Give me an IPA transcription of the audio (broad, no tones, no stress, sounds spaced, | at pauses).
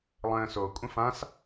lˠ ə̃ː s o kʷʼ ã f ã s